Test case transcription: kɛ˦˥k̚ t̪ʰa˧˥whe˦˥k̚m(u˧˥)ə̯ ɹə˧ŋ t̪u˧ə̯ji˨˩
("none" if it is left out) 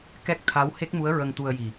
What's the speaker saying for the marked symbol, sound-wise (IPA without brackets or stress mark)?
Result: u˧˥